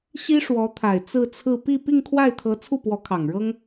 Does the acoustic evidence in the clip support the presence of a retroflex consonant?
yes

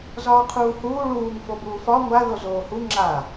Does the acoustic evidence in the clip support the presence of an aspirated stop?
yes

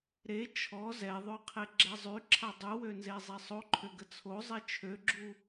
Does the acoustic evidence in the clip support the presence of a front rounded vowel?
yes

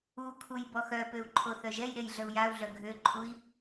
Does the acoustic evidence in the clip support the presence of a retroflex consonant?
no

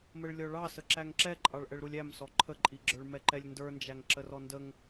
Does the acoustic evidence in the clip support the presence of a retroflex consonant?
yes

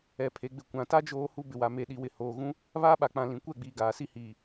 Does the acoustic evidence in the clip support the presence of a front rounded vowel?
no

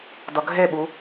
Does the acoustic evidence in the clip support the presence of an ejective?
no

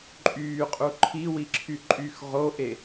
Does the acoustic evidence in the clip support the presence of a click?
yes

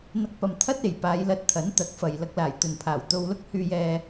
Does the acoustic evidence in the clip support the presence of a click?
no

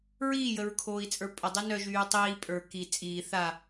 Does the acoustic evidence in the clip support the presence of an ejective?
yes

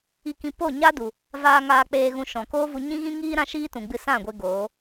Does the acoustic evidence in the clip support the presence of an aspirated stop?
no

